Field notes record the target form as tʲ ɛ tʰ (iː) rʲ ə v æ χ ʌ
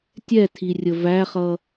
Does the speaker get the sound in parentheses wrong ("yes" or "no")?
yes